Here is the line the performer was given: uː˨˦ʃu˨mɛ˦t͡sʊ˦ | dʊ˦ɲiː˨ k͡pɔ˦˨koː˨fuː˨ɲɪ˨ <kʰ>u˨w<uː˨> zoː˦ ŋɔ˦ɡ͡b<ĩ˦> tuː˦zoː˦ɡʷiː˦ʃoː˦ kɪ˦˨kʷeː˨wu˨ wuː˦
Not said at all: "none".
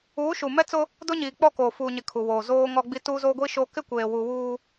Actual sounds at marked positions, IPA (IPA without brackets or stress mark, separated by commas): kʰ, oː˨, i˦